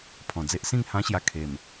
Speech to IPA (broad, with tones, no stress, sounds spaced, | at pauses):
pʰ ɔ̃˨˩ d͡z e˦ ʔ s ĩ˥˧ ŋ h ã˦ ɕ j a˧ kʰ e˨˩ m